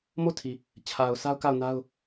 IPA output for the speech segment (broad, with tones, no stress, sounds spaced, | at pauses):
m o˦˨ tʰ i˨ | t͡ɕʰ a˨ ʊ̯ s a˦ ʊ̯ k a˦˨ ʊ̯ n a˦ ʊ̯